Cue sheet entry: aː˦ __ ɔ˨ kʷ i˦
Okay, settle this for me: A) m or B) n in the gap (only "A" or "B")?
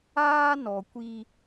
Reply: B